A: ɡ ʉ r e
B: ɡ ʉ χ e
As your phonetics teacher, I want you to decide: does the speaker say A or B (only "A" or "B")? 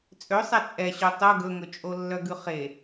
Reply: B